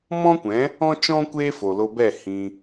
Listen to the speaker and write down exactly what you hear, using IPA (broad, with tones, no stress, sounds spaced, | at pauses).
m ɔ̃˦ kʷ ɛ̃˨˦ | ɔ̃˦ t͡ʃ ɔ̃˦ kʷ eː˦ f o˨ l o˧ b ɛ˦˨ h ĩ˧